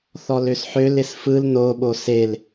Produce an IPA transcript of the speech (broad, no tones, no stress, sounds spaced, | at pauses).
θ ɔ l ø s ħ ø l ɪ s f ɯ l n o ɓ o s e l